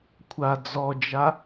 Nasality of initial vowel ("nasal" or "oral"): oral